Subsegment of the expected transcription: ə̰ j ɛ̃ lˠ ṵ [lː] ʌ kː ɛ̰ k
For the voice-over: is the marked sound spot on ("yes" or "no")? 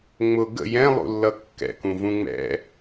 yes